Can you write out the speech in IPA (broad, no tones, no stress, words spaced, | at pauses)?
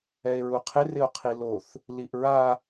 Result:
ɛe̯ɹuqʰɪ rɪo̯qʰiloθ | liʔɹa